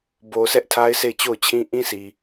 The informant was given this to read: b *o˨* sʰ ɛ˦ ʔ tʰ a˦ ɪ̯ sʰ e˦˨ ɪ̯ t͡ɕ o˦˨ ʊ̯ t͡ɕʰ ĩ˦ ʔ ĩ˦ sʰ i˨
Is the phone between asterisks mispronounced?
no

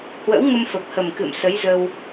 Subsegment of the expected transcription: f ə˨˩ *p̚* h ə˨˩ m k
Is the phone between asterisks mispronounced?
no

